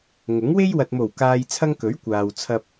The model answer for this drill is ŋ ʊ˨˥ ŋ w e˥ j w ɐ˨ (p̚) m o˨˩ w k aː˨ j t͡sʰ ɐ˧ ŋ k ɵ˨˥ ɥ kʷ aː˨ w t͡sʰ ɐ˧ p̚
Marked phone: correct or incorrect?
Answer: incorrect